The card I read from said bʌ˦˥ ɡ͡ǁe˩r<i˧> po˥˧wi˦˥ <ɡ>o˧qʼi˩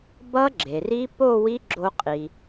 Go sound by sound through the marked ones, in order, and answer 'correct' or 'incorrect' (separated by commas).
incorrect, incorrect